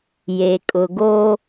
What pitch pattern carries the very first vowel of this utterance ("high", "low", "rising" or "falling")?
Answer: low